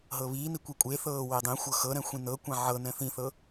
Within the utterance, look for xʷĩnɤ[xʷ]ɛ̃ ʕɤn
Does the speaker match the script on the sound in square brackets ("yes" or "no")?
no